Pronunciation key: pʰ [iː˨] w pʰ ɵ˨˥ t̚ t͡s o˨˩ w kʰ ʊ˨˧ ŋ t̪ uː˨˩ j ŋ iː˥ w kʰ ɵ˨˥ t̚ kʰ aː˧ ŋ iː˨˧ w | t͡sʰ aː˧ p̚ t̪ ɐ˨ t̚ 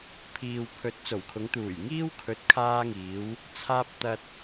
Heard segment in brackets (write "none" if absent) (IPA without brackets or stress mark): iː˨